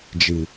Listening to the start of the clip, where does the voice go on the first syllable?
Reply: low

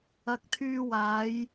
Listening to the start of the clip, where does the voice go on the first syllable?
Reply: low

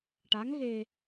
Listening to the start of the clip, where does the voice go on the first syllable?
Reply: rising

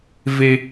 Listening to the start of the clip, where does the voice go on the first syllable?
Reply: high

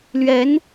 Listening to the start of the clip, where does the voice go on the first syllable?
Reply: rising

